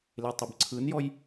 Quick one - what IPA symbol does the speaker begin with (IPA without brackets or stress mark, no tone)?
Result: l